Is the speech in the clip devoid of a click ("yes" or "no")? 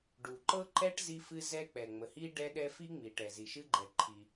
no